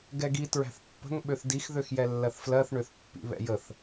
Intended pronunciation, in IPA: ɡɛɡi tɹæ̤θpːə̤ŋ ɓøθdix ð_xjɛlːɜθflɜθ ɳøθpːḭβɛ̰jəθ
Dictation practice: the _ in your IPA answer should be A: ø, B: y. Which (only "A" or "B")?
A